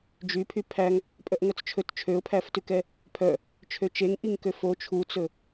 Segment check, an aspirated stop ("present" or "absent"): present